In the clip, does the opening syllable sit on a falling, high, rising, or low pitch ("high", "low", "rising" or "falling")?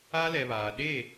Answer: high